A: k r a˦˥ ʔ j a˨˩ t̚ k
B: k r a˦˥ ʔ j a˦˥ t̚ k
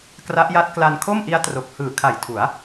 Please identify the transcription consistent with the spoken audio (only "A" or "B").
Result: B